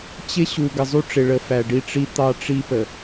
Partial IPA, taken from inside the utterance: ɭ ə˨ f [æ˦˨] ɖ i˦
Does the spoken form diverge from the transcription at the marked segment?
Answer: yes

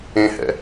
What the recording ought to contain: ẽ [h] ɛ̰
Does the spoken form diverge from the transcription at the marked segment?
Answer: no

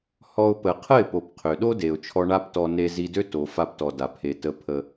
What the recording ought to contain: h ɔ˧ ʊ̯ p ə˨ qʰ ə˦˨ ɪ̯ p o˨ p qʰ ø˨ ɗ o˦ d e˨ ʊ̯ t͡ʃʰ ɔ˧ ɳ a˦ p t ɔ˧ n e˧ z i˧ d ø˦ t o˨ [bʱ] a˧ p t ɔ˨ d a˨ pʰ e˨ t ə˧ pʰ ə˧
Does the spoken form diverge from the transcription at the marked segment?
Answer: yes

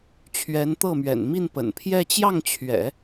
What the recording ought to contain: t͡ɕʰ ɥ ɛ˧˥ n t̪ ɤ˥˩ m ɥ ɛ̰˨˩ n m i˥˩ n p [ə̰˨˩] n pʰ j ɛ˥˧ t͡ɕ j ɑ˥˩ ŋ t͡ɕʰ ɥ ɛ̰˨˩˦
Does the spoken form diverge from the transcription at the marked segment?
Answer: no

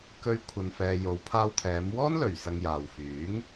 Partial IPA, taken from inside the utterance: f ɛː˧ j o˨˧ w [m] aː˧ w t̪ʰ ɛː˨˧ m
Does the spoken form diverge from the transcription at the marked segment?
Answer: yes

